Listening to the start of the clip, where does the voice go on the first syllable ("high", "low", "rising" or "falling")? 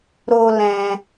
high